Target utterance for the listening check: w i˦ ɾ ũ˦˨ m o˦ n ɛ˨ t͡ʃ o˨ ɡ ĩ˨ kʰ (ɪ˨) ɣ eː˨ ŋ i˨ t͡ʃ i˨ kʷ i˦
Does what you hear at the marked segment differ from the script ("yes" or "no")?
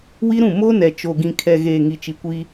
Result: yes